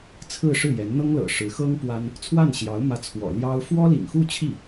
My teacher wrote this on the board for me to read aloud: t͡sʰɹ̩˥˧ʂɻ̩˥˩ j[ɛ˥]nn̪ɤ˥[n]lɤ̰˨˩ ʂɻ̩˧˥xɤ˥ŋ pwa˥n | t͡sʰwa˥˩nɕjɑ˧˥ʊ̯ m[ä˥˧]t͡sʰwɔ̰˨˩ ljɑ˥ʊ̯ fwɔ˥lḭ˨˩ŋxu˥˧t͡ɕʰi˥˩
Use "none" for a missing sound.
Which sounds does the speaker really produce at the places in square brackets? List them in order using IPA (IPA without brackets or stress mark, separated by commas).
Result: ɛ˧˥, ŋ, ä˧˥